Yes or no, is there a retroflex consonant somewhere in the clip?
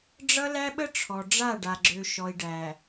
yes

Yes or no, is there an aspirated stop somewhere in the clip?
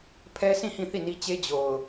yes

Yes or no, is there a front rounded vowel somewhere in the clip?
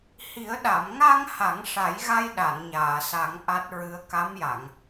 no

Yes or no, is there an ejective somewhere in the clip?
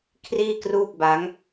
no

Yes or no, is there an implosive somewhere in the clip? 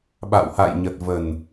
yes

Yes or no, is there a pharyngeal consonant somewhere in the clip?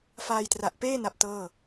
no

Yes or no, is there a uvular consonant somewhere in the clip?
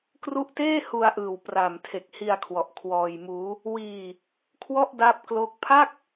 no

